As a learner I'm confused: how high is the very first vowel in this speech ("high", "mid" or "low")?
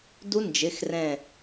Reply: high